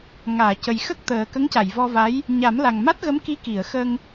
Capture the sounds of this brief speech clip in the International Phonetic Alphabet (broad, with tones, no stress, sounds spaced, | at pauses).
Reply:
ŋ aː˨˩˨ c ə˨˩ j x ə˦˥ k̚ t̪ əː˨˩ k ə˧˥ ŋ c a˨˩˨ j v ɔ˧ v a˧˥ j | ɲ a˨˩˦ m l a˨˩ ŋ m a˦˥ t̚ ɣ ə˧˥ m k i˧˥ k i˨˩˨ ə̯ x ə˧ ŋ